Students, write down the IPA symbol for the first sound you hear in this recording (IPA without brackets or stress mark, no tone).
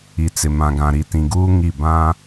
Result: i